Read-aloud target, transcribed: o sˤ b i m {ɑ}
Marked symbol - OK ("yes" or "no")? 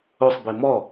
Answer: no